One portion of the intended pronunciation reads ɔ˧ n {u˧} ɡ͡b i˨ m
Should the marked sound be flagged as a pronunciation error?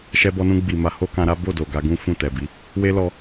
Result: yes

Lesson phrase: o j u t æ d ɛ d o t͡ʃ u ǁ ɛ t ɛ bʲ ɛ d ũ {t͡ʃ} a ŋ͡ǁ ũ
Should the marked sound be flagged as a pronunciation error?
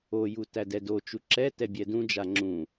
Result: yes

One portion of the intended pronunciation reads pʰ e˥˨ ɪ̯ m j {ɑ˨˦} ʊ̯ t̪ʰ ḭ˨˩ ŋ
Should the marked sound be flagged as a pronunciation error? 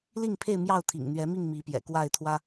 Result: yes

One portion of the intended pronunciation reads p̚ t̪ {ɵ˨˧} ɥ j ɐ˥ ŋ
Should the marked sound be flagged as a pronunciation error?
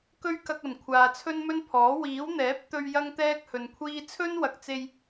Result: yes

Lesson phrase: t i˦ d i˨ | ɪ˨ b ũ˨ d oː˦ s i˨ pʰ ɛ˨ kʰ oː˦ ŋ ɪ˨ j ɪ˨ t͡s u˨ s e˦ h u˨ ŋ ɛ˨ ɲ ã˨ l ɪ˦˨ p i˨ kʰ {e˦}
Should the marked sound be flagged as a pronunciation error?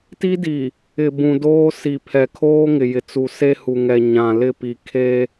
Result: no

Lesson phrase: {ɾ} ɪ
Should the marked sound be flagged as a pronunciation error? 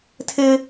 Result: yes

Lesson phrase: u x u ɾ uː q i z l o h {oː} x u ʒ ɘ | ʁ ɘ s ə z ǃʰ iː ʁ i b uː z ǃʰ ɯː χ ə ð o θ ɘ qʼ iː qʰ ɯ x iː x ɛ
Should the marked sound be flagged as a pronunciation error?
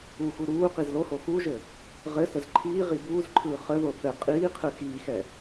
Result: yes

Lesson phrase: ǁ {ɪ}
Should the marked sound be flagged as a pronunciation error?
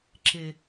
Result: no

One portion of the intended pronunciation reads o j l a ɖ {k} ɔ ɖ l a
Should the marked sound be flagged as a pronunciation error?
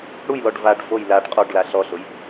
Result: yes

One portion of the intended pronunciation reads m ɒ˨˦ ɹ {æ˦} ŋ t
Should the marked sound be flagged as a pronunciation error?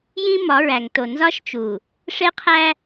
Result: yes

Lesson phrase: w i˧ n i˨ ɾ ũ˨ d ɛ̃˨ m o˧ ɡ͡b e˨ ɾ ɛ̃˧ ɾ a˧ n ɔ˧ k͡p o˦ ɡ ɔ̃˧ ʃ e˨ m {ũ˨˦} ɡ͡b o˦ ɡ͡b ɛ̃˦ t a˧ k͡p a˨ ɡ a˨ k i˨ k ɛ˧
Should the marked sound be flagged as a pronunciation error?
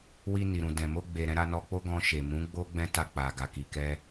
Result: no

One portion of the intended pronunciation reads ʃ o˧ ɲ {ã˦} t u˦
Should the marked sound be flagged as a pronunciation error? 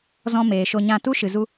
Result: yes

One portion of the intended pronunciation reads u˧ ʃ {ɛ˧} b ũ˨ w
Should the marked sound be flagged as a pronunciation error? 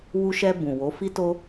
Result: no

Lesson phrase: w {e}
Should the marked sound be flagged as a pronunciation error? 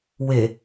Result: no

